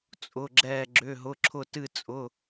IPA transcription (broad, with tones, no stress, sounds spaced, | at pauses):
t͡sʼ ʊ˧˥˧ ɡ͡ǁ ɛː˥˧ ɡ͡ǁ ʏ˧˥˧ ɦ ʊ˧˥˧ ǁʰ ʊ˥˧ t ɨ˥˧ t͡sʼ ʊ˧˥˧